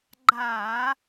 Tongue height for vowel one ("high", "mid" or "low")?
low